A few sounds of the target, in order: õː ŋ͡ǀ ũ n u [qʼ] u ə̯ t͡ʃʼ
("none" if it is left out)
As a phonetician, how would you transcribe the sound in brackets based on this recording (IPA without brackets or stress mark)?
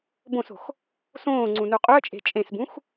qʼ